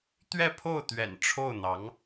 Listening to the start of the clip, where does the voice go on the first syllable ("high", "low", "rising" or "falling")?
falling